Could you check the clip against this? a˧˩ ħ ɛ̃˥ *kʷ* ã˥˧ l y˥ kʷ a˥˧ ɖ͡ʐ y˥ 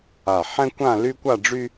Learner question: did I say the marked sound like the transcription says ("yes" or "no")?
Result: yes